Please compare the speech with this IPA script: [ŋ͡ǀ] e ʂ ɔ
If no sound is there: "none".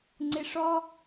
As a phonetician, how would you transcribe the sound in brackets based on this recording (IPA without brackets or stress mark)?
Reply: ŋ͡ǀ